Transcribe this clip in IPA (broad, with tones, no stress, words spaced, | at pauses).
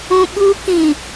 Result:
ũ˦ɓu˦ kĩ˨